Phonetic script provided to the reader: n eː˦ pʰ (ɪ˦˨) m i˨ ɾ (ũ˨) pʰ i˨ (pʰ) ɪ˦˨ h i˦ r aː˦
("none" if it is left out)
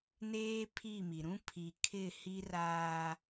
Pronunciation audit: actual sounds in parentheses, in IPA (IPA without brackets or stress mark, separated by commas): i˦˨, ũ˦, kʰ